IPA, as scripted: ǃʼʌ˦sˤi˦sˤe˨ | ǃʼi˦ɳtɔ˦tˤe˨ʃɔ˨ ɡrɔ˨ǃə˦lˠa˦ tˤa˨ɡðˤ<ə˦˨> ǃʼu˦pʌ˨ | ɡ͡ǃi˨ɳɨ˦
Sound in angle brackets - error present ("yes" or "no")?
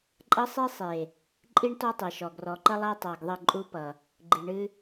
no